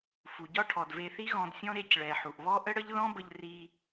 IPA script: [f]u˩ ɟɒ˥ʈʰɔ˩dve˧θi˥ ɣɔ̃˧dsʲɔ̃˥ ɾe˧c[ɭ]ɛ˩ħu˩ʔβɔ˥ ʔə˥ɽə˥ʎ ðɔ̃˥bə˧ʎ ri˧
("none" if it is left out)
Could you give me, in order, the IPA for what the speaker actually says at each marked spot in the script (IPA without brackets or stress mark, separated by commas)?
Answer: f, ɭ